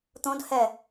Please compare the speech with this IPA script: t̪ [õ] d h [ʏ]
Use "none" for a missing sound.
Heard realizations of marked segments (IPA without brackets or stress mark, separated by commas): õ, ɛ